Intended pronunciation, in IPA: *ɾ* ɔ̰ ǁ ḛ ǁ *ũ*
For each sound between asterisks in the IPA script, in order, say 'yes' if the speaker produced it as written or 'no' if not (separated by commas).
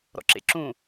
yes, yes